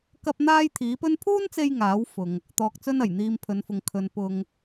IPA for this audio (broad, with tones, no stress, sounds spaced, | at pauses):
k ɐ˥ p̚ n̪ aː˥ j t̪ʰ iː˨˥ p ɵ˥ n pʰ uː˥ n t͡s e˧ j ŋ aː˨˥ w f ʊ˨ ŋ | t̪ ɔː˨ k̚ t͡s ɵ˧ n ɐ˨˩ j n̪ iː˧ m pʰ ɵ˨˧ n f ʊ˨˧ ŋ kʰ ɵ˨ n p ʊ˨ ŋ